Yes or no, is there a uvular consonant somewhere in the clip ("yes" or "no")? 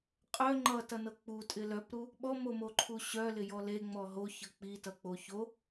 yes